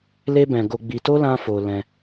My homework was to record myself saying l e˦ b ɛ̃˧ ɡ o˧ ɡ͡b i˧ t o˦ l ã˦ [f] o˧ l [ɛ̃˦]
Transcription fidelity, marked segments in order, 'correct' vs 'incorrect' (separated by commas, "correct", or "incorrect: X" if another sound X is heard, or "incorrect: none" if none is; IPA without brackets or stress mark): correct, incorrect: ɛ̃˧